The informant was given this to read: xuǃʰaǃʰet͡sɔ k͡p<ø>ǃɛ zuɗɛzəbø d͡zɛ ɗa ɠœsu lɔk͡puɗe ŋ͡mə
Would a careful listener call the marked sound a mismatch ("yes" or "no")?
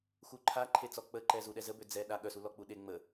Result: yes